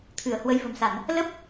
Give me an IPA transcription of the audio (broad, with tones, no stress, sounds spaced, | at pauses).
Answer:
t̪ʰ ɨ˧˩ ə̯ h w ə˨˦ j v ə̤˨˩ m s a˧˩˨ n | l ə˦˥ p̚